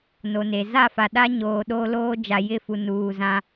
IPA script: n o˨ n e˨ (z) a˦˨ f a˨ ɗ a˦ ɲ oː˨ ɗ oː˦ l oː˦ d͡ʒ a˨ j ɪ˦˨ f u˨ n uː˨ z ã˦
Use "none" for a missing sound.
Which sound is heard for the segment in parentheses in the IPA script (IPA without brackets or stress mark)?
z